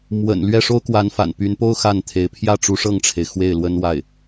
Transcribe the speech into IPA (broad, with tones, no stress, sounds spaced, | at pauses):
m w ə̰˨˩ n l ɥ ɛ˥˩ ʂ o˥ ʊ̯ k w a˧˥ n f a̰˨˩ n p y˧˥ n p o˥ ʊ̯ x a˥˩ n t̪ʰ e˧˥ ɪ̯ pʰ j ä˥˩ ʈ͡ʂ u˧˥ ʂ ɤ˥˩ ŋ ʈ͡ʂʰ e˩ ɪ̯ x w e˥˩ ɪ̯ l w ə˥ n w a˥˩ ɪ̯